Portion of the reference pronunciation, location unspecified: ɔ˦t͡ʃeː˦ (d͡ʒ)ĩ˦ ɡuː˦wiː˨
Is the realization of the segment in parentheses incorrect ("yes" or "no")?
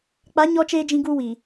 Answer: no